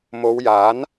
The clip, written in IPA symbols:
m o˨˧ w j aː˨˥ n

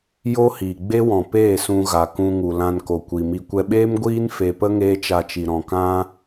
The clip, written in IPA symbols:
j o˦ h iː˨ ɡ͡b e˦ w ɔ̃˨ p eː˦˨ s ũ˧ ɣ a˨ k ũ˧ ŋ u˨ l ã˧ n k o˨ kʷ i˨ m i˧ kʷ ɛ˧ ɓ eː˦ m ɡʷ iː˦ n f e˨ p ə˦ ŋ eː˦ t͡ʃ a˧ t͡ʃ i˨ ɾ ɔ̃˨ k ã˦

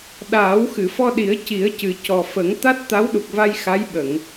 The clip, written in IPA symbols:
ɗ aː˨˩˦ w x ɨ˨˩˨ f ɔ˧ ɗ i˨˩˦ ə̯ c i˨˩˦ ə̯ c ɨ˨˩ c ɔ˨˩ f ə˨˩˦ ŋ t̪ a˦˥ t̚ t̪ a˧˥ w ɗ u˨˩ k̚ v a˧ j x a˧˥ j ɓ ə˨˩˨ ŋ

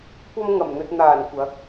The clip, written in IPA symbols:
kʷ ɐ˧ m ŋ ɐ˨˩ m n̪ ɵ˧ t̚ n̪ aː˨˩ n kʷ ɐ˨˥ k̚

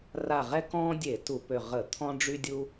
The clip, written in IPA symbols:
r a˧˩ ʁ ɛ˦ k ɔ̃ː˦ dʲ e˧˩˧ t u˧˩˧ p ø˧˩ ʁ ə˧˩˧ t̪ʰ ɔ̃˦ ɖ͡ʐ y˦ dʲ u˦

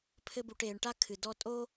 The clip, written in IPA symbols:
pʰ ɘ˧ b u˨ ʈ eː˨ ɳ ʈ a˧ kʰ ɨ˨ d ɔ˧ tʼ o˦

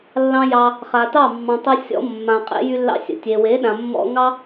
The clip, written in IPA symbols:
lː ɑ̃˦ j ɑ˧ | χ a˨ t ɑ˦˨ mː ɑ̃˨ tˤ ə˧ sʲ ɔ̰˧ mː ã˨ qʼ ḛ˧ j y˧ lː ɑ̰˧ sʲ ə̰˨ tʲ e˨ w e˨˦ ɗ ã˨ mː ɔ̰˧ ŋ ɑ˦

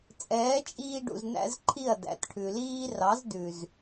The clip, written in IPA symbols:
t͡sʼ ɛː˨˦ t͡ʃʼ iː˧ ɖ ṵ˨ z n æ̰˦ z ǃʰ i˦˨ ɐ̯ d æ̰˨ t ʈʰ ʉ˨ l iː˦ r ɑ˨˦ z d ʉ˨ z

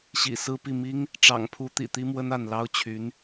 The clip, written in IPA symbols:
ɕ ḭ˨˩ s ɹ̩˥ p i˥˩ m i˥ ŋ | ʈ͡ʂ ɑ̰˨˩ ŋ pʰ u˧˥ t̪ ḭ˨˩ t̪ i˥ m w ə˥ n a˥˩ n l ɑ˥ ʊ̯ t͡ɕʰ y˧˥ n

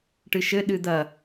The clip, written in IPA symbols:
ʈ ɨ ʃ ɘ ɗ ɨ d̪ ɐ

